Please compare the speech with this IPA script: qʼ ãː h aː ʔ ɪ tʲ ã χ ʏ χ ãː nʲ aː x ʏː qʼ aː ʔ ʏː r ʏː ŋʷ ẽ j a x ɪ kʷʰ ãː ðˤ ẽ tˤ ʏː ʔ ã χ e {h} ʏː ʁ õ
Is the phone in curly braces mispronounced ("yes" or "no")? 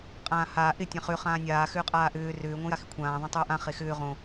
yes